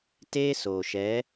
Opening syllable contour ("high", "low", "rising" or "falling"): high